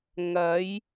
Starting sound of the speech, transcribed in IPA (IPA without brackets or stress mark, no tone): ŋ